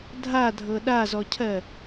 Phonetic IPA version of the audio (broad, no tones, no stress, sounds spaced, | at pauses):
dʱ a dʱ ɤ ɗ a z ɔ cʰ ɜ